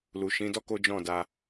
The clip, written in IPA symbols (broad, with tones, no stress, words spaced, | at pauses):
lu˨ ʃĩ˨˦dɔ˦ ko˦d͡ʒɔ̃˦˨da˧